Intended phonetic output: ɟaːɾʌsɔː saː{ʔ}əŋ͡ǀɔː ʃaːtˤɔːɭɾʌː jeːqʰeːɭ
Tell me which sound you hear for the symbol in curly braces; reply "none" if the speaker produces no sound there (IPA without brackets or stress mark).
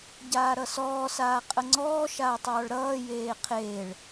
qʼ